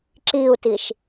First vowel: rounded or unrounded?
unrounded